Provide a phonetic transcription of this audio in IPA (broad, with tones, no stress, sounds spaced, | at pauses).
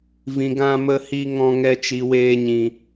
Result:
v ĩ˨ ɡ ã˧ m ə˧ h i˧ ŋ ɔ̃˧ ŋ ɛ˧ t͡ʃ i˨ w eː˧ ɲ ĩ˨